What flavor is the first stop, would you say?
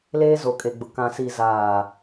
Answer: ejective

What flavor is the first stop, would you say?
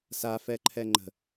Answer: click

